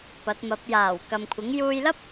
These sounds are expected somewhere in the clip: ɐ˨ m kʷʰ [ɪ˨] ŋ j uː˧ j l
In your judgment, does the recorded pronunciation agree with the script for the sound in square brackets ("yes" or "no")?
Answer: no